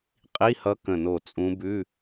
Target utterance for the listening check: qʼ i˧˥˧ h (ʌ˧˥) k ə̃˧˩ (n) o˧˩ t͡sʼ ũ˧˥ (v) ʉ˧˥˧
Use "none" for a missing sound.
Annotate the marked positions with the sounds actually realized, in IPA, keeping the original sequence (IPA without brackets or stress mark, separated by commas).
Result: ʌ˧˥, n, b